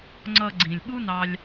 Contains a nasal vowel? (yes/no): yes